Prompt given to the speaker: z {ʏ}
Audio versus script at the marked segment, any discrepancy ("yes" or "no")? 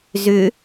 no